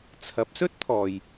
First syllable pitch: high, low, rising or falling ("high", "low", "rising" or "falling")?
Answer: rising